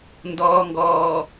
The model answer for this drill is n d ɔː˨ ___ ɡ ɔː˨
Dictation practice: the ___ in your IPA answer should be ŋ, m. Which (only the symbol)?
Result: ŋ